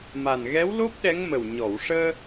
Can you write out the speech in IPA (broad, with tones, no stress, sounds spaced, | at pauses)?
m a˨˩ n ɣ ɛ˧˥ w l o˦˥ p̚ ɗ ɛ˧˥ ŋ m ə˨˩ w ɲ ɔ˨˩˨ w ʂ əː˧